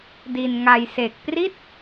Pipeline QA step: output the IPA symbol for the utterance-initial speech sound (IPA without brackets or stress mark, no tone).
d